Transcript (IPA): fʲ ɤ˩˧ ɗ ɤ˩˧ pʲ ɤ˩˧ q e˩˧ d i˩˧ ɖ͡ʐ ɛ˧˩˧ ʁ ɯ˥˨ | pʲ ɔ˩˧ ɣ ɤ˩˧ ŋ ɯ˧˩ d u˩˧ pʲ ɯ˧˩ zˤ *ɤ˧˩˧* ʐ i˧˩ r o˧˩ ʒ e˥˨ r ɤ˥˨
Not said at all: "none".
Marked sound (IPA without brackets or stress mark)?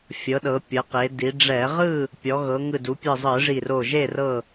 ɯ˧˩˧